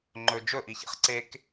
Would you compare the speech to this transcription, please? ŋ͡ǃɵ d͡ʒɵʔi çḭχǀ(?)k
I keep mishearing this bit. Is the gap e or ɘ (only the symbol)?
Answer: e